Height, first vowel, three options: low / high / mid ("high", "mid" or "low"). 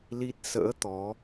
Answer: high